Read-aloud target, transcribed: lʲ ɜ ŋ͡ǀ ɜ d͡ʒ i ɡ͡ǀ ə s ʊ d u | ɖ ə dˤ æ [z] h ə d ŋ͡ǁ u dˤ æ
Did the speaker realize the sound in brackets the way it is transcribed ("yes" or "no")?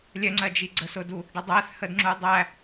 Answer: no